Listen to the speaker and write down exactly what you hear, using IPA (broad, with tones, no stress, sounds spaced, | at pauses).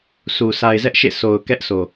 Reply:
s u˨ s a˨ ɪ̯ z ɛ˦ ʔ ʃ ḛ˦˨ s o˨ ʊ̯ k ɛ˦ ʔ sʰ o˨